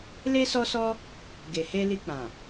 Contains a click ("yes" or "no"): no